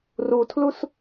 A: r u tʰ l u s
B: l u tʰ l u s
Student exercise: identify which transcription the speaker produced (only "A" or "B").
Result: A